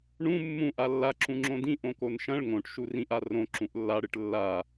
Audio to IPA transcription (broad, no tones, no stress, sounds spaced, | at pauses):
ɳ ũ mː ũ ʔ a lː a ǁ ũ ŋ͡ǁ õ d ĩ ʔ õ k o n ʃ ɐ̃ ɭ ŋ õ ʈ ʃ u r ĩ ʔ a r õ ǁ ũ ʔ lː a ɽ ɨ ʈ lː a